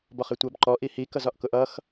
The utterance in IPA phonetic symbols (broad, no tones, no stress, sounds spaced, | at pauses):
b ɒ χ ɪ tʷ ʌ b ǃ ɔ ʔ i h i k ʌ z ɒ ʔ k ʊ ʔ ʌ x